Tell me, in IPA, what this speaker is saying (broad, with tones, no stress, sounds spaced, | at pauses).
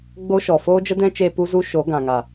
ɡ͡b o˦ ʃ ɔ˨ f oː˦ d͡ʒ ə˦ d ɛ̃˦ t͡ʃ eː˧ p u˦ z u˦ ʃ o˨˦ ɡ ã˨ ŋ a˨